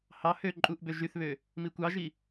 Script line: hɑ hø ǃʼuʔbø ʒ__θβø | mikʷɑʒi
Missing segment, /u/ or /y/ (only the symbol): y